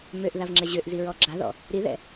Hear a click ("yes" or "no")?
yes